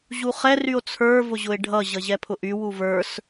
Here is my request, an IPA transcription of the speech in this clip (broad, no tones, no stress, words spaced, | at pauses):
ʑuχɛ ryo̯t͡sʰə˞vʊʑʊe̯ ɖʱʌ ʑʌʑɛpʰʊʔy wuvə˞s